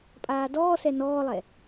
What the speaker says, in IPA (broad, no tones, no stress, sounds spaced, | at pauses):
pʼ aː d ɔː s ɛ n ɔː lˠ ɛ